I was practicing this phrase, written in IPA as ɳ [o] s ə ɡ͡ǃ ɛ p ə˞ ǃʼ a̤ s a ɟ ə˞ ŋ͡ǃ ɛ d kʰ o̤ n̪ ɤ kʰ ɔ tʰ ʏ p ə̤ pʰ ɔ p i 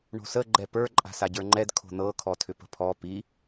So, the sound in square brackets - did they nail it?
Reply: no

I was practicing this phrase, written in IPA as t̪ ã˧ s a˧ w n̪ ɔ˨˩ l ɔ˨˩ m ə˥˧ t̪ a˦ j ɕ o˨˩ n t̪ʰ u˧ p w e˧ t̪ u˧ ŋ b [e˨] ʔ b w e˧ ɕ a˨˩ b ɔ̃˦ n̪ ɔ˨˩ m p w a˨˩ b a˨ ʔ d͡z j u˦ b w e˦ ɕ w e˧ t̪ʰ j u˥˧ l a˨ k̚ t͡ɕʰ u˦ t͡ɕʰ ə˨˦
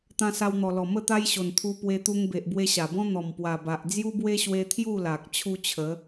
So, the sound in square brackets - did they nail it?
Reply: yes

